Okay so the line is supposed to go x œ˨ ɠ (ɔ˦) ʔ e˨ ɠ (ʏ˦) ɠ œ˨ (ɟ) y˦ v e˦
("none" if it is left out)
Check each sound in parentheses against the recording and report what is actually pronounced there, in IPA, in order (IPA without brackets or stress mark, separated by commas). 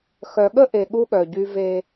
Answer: ə˦, u˦, ɟ